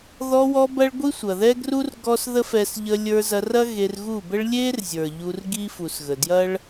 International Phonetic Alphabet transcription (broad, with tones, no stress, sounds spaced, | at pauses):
ð ɔ˧ w ɔ˧ b ɐ˦ ɭ ɡʷ i˦ sʷ ɐ˨ ð ɛ˦ ɡ r u˦ r ɡ ɔ˦ s ð ə˦ f ɛ˧ s ʎ ə˧ lʲ ə˞˧ z ɐ˧ r ɐ˦ ɣ e˧ r ɣ u˦˨ b ə˦ ɭ lʲ e˦ r zʲ ə˞˨ ʎ u˧ r ɡ i˦ f u˨ s ɣ ə˨ d j ɐ˦ ɭ